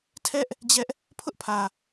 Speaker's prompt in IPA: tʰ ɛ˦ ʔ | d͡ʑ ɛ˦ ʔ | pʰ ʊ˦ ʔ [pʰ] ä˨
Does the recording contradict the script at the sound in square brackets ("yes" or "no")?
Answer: no